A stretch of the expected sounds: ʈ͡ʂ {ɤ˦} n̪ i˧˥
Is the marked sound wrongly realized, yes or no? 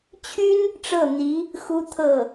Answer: yes